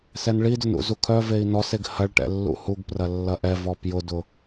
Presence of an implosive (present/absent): absent